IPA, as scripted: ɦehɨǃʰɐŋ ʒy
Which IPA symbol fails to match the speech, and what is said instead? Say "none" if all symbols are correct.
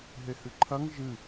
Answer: y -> ɨ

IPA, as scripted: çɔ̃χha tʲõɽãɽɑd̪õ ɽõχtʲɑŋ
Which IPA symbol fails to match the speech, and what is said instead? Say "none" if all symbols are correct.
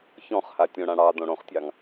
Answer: none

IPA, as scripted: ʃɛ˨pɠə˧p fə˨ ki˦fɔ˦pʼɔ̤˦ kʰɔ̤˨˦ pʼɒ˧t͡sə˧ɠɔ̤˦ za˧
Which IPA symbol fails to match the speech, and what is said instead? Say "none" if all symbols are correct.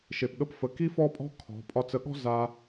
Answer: ɛ˨ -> e˨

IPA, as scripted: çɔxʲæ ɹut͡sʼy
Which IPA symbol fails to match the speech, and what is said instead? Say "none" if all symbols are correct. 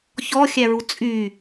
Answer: none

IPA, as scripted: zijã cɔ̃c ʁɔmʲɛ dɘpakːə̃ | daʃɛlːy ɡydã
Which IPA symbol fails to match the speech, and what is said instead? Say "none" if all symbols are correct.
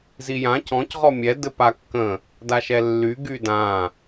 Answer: none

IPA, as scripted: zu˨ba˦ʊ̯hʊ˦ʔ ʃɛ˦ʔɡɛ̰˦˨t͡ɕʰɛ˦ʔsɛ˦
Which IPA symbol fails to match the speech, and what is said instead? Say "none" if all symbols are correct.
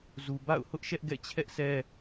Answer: a˦ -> a̰˦˨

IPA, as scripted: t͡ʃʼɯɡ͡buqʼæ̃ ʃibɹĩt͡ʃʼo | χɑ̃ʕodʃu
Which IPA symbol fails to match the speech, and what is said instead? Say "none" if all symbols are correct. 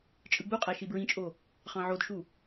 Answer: æ̃ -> æ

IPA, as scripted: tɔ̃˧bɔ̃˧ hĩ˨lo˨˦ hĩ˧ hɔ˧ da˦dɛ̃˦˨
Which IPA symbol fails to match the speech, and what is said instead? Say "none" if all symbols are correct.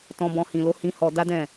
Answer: none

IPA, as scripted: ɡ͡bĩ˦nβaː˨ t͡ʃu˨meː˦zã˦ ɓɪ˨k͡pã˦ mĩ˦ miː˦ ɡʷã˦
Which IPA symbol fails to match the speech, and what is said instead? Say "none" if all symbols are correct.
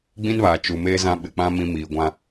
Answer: none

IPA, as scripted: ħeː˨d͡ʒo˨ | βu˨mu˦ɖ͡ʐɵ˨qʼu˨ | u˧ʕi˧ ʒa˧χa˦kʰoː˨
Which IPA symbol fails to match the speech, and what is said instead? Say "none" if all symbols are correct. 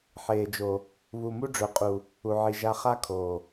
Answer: none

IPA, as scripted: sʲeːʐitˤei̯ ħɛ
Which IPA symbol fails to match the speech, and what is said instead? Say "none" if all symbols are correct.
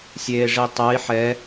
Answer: none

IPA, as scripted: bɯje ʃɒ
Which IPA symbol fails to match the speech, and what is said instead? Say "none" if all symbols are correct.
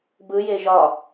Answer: ʃ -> ʒ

